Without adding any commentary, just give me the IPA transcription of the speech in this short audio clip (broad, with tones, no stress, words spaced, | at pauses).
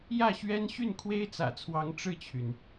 jä˥˩ɕɥɛ˥n ɕy˥˩nkʰwe˥ɪ̯t͡sä̰˨˩t͡sʰwɑ˧˥ŋ ʈ͡ʂɻ̩˥˩t͡ɕʰy˩n